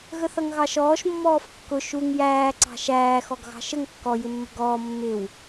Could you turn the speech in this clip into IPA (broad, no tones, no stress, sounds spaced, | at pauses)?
ɣ ə θ ʌ ŋ ɣ ɑ ʃ ɔː ʃ mː ɔː f kː ʊ ʃ u ŋ j æː ǀ ɑ̤ ʃ æː x ɔ ɡ ɣ ɑ̤ ʃ ə ŋ kː ɔ j ɪ mː ə̤ ɡ ɔː mː ɪ w